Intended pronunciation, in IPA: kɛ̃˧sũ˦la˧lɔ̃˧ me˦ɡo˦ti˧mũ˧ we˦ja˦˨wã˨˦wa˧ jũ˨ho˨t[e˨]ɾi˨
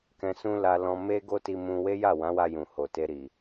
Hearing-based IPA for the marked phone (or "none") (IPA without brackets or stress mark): e˧